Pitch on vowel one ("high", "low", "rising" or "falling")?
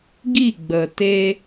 falling